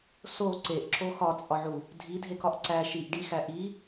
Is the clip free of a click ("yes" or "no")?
no